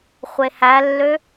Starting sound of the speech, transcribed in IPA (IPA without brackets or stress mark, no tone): χʷ